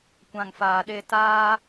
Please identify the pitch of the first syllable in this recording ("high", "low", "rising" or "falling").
low